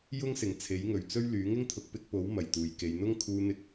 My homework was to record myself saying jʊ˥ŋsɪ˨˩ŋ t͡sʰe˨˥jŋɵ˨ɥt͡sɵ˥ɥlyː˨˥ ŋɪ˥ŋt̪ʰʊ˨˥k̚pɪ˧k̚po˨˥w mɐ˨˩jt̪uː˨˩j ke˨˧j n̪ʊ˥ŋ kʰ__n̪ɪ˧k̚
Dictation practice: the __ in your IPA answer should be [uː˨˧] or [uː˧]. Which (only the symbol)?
uː˧